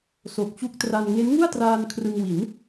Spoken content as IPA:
so˨˩k̚t͡ɕu˦˥k̚tra˧n ŋe˦˥nŋu˥˩a̯traː˧n kʰrɯ˧ŋwi˩˦n

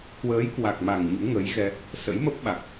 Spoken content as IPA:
kwəː˨˦jkwa˨˩k̚ma˨˩ŋ ɲṵ˧˥ŋə˨˦jɣɛ˧ | sə̰˧˥jmə˦˥p̚ ɓa˨˩k̚

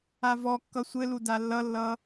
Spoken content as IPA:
avɔkːʌ sʷɘlu dalːʌlːʌ

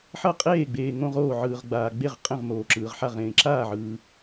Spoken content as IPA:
ħʌ˥˨qʼeː˥˨ɡ͡beː˨ ŋõ˥˨ʁoː˥˨ʕɯː˨ʁɡ͡baː˨ ɡ͡be˥˨ʁqʼẽ˥˨ʁmoː˨ ǁɯː˨ʁħa˥˨ʁ ẽː˨ǁaː˥˨ʕɯː˨

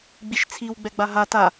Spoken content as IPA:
ɡ͡biʃt͡sʰiw ɡ͡bɛɡ͡baɦa ta

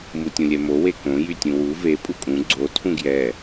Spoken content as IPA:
mutʲũlʲɛmo wekõ jytʲũwu ve pʼukʼũ ɡ͡ǀo tʰũɡjɛ

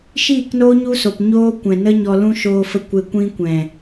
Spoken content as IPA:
ʃiː˦˨knoː˦ ɲu˦so˨pɲoː˦ kʷɛ̃˨nə˦ɲɔ˧lũ˦ ʃoː˧fə˧ kʷe˧kʷĩ˦ kʷɛ̃˨

